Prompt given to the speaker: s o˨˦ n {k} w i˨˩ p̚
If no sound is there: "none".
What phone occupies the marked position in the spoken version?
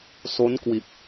k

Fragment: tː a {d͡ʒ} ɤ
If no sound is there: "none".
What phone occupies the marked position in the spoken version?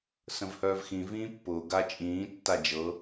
d͡ʒ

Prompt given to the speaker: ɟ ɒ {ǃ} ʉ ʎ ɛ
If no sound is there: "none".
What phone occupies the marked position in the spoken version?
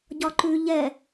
ǃ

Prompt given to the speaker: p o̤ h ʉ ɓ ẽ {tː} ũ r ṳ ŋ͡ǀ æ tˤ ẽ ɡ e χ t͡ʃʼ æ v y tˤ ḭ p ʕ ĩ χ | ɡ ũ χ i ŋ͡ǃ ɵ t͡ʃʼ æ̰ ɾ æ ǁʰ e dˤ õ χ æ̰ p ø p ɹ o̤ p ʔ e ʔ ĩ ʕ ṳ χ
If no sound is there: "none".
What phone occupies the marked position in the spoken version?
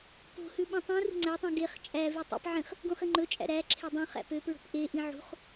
tˤ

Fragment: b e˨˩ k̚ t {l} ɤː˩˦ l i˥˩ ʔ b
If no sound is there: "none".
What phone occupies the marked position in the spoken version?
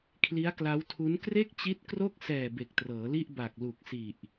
r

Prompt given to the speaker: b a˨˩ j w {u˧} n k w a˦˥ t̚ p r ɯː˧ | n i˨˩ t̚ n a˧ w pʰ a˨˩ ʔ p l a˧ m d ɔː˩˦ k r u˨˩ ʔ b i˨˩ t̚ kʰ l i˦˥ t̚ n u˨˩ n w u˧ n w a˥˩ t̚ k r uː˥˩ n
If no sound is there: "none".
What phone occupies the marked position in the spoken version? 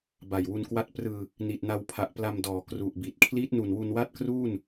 u˧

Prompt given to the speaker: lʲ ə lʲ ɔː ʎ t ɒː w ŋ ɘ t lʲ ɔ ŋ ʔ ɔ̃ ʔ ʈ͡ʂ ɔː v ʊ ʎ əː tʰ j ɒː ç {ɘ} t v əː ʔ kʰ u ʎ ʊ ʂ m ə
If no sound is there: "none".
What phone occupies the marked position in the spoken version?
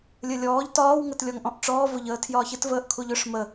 ɘ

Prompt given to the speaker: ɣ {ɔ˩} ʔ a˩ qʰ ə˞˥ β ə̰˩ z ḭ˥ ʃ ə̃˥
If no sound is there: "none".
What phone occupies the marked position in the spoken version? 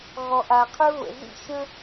ɔ˩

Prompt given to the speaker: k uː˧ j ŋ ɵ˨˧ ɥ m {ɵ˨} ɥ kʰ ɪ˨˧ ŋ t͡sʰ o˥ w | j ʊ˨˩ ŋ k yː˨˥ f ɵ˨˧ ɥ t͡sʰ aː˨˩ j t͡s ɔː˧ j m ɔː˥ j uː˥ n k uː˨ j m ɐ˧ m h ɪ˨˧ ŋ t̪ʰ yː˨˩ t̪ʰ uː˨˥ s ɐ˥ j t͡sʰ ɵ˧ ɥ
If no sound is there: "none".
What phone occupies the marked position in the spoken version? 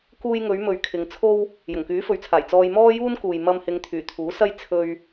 ɵ˨˧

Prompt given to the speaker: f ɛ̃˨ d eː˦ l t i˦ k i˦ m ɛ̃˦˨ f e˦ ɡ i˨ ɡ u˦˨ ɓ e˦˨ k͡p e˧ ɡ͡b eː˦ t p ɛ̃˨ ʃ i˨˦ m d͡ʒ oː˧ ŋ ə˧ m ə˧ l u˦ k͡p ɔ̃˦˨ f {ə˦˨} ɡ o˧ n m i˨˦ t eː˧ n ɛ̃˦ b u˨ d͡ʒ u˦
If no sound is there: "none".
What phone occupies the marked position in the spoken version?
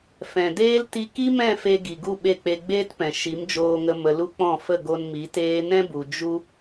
ə˦˨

